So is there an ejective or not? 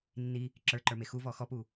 no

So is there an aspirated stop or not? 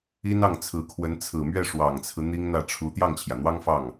yes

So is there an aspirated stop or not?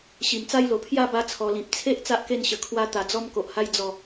yes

